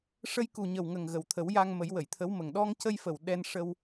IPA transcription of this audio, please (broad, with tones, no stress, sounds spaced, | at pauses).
ʂ ə˧ j k u˨˩ ɲ ə˨˩ w ŋ ə˨˩ ŋ ɣ ə˨˩ w t̪ʰ ə˨˩˦ w j a˧ ŋ m ə˨˩˦ j w ə˨˩˨ j t̪ʰ ə˧˥ w m ə˨˩ ŋ ɗ ɔ˧ ŋ c ə˧ j f ə˨˩ w ɗ ɛ˧ n ʂ ə˧ w